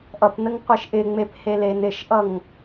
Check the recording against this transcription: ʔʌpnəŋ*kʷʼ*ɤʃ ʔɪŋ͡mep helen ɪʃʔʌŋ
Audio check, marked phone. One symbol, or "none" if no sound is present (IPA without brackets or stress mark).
qʷ